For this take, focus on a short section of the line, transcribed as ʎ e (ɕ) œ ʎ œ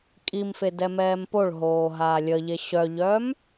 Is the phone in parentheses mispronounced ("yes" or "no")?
no